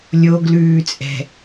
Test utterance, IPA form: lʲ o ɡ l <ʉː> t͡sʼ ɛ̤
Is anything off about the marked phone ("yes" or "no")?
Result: no